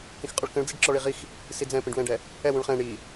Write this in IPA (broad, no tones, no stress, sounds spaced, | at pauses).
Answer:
k ĩ x qʼ ʊ ɭ k ə̃ ɭ d͡z i ɖ ǁ ɔ ɭ i ʁ i x | s i d͡z ɛ̃ p ĩ ɖ w ɛ̃ ɖ ɛ | ɛ w ũ ɭ χ ɛ̃ ɳ i